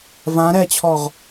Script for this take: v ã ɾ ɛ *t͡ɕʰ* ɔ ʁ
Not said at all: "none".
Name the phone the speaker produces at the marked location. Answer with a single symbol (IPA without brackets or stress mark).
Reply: t͡ɕʰ